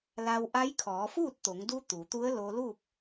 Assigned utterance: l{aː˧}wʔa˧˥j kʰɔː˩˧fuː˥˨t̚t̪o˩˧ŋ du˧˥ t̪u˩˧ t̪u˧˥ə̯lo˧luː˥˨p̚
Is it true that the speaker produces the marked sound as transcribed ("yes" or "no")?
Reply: no